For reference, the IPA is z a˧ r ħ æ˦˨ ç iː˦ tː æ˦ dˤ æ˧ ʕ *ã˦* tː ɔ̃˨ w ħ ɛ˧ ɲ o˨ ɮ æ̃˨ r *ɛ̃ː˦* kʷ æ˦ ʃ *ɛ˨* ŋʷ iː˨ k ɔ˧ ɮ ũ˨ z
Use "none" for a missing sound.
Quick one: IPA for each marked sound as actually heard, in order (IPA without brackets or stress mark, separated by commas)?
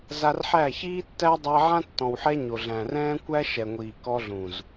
ã˦, ɛ̃ː˦, ɛ˨